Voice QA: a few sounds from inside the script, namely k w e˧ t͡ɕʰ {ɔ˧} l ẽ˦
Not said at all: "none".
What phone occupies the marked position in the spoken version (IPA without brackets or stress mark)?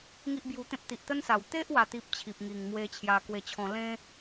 ɔ̃˧